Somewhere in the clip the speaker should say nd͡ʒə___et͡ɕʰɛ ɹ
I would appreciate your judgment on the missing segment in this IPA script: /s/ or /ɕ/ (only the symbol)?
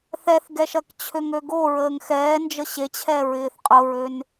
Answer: ɕ